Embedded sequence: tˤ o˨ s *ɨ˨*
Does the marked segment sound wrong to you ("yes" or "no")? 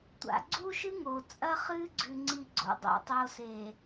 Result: yes